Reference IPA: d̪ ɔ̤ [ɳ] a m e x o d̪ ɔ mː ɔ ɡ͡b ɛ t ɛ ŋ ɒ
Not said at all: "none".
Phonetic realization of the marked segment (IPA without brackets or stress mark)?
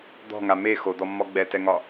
ŋ